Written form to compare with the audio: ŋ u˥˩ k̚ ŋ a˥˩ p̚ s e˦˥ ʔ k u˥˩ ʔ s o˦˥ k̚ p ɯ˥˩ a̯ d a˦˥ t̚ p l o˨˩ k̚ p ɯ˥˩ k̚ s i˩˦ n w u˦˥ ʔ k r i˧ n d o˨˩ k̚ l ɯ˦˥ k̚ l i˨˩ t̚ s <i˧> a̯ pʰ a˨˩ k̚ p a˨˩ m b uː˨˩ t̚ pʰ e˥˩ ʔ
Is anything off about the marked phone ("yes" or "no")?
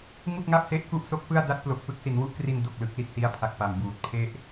yes